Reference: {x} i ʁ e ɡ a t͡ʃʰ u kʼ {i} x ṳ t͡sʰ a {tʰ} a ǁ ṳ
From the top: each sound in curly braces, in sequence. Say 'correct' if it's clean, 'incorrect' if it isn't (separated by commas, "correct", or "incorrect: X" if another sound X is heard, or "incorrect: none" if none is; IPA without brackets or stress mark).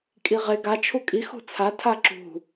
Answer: incorrect: kʼ, correct, correct